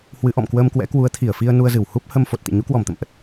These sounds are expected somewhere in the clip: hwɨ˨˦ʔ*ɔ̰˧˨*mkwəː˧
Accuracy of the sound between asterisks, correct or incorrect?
correct